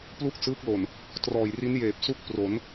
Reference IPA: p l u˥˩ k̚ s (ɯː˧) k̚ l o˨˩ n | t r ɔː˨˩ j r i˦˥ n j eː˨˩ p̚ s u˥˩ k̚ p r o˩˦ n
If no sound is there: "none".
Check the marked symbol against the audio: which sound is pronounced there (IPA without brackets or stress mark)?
ɯː˦˥